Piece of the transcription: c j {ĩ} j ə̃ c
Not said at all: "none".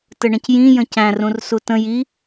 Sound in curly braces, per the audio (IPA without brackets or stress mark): ĩ